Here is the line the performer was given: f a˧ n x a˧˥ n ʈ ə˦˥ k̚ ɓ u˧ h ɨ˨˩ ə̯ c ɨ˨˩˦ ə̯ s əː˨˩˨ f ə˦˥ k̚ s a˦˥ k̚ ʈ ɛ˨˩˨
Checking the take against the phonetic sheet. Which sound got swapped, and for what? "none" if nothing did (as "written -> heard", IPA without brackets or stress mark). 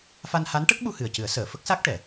x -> h